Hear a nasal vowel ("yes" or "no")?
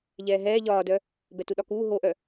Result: no